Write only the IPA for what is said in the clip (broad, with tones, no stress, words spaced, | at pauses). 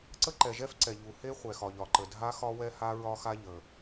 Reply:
ǀə˥ǃɛ˩ʒɛ˥f ǀɛ˩ʎu˩he˥ χʷɛ˩ xɒ˩ʎɒ˩ǃə˩ dʱa˥xɒ˥wɛ˥ ha˥ɹɒ˥ xa˥ ʎə˩